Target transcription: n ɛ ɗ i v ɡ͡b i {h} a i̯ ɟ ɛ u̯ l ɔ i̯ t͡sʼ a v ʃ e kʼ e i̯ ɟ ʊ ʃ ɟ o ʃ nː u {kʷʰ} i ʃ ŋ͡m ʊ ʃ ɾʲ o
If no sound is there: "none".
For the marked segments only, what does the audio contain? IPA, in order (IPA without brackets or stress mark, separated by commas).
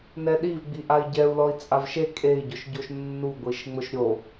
ʔ, ɡʷ